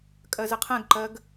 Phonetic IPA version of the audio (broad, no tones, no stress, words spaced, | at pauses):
kʼɜzəqʰɛ̃ɡǃɜɡ